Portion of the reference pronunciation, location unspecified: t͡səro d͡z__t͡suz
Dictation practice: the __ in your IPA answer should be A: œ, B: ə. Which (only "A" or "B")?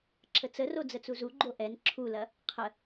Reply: B